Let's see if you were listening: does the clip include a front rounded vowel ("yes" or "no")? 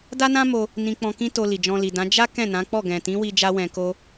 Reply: no